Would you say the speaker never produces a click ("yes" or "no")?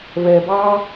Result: yes